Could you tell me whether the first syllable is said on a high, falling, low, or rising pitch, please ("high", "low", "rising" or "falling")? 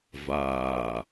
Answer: low